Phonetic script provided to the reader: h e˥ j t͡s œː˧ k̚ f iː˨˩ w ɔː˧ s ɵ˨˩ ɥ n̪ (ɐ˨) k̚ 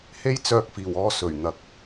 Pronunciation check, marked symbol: correct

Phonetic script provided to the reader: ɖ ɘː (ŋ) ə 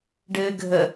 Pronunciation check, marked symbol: incorrect: ɡʱ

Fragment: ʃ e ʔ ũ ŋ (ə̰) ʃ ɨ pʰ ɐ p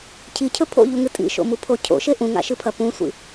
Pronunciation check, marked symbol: incorrect: a̰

